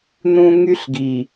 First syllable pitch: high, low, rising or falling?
low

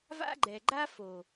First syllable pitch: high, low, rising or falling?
high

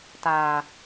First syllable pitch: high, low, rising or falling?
low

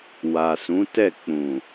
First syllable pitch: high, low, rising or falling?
low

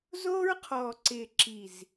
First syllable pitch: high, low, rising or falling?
high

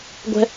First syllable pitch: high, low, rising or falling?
high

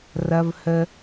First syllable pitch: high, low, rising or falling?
high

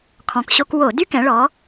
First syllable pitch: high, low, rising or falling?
low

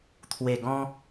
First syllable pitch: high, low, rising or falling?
low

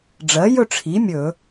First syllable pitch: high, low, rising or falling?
rising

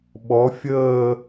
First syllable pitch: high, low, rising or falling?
rising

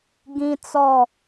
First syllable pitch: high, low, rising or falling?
high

